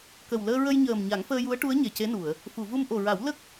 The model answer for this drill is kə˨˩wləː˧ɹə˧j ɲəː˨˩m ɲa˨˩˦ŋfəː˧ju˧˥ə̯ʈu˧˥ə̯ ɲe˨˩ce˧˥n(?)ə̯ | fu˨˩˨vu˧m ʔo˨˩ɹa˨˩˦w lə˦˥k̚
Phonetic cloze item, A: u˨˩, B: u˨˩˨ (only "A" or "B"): B